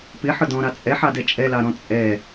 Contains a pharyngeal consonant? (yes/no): yes